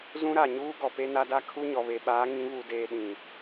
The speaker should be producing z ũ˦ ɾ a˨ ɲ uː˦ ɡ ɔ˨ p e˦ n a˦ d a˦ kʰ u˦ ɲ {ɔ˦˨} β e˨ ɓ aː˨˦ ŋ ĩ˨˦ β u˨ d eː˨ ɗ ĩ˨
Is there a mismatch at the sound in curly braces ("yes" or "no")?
yes